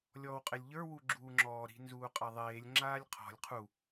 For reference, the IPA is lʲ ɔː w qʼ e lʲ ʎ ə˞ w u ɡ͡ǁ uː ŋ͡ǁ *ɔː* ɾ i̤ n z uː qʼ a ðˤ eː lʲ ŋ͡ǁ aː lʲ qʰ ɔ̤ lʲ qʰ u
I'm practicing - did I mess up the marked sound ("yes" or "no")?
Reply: no